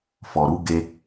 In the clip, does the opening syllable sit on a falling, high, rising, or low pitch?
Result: low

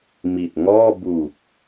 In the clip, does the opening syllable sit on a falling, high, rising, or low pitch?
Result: low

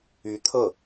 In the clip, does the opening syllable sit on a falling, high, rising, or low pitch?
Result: rising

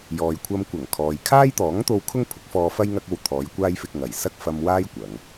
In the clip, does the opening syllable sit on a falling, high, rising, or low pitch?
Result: low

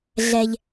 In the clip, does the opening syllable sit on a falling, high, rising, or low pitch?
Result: low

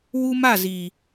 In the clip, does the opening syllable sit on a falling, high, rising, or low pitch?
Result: high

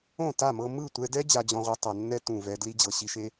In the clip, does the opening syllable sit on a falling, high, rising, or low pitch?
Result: falling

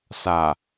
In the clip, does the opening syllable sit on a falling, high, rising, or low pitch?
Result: low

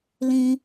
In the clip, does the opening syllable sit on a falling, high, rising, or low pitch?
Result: high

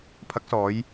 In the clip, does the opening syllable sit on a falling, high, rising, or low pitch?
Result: rising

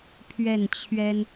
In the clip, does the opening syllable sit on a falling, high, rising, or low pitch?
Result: falling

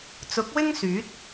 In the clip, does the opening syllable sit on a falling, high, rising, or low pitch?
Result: rising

